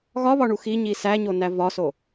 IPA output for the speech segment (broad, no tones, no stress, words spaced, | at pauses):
ɣɒβɒɳu xiɲi sæɲonæ vɒso